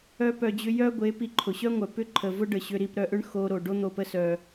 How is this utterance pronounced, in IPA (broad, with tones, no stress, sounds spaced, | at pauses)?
œ˦ p œ˧ d͡ʑ ʏ˦ j œ˦ ɡʷ e˨˦ p i˧ ǃʰ ʊ˨ ɕ œ˦ ŋʷ œ˨ p ʏ˦ ǃʰ ə˨ v ʊ˦ ɖ ə˨ ɕ ʏ˧ ɾ i˧ p ɾ œ˧ ʔ ʏ˦ ɳ x o˧ ɾ o˨ ɖ o˦ n̪ o˧ p ə˦ s œ˧